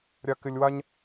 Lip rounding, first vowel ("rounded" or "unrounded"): unrounded